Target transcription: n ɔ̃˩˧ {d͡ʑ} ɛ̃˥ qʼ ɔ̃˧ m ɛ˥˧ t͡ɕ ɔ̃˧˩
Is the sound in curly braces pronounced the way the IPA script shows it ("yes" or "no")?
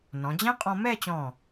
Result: yes